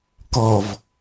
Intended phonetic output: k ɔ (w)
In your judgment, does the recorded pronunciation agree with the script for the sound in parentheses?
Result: no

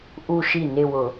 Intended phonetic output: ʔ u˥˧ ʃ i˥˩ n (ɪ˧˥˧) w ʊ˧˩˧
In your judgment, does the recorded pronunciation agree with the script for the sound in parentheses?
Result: no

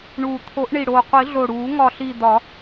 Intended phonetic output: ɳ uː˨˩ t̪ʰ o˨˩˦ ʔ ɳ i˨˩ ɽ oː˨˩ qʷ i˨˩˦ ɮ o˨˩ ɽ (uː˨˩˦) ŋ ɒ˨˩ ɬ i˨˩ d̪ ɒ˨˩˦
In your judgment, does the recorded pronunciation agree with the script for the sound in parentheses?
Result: yes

